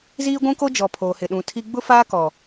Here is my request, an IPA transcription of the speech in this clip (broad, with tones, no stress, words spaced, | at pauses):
ziː˦ɡʷũ˦ko˦d͡ʒɔ˨ pʰoː˨hɪ˨ɗũ˨tʰi˦ ɡ͡bʊ˦faː˦kɔ˨